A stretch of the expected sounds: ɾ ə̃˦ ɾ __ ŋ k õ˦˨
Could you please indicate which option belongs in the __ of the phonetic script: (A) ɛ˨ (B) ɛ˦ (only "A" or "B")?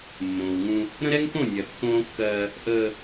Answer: B